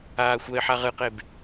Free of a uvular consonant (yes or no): no